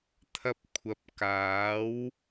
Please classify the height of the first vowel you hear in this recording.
low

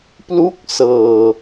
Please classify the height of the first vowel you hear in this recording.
high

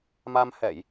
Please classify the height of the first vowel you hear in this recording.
low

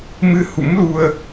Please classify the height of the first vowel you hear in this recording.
high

